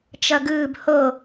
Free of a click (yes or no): yes